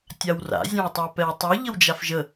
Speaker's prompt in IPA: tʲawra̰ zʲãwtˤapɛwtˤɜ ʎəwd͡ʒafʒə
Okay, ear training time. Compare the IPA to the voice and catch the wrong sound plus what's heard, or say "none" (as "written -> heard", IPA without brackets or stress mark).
none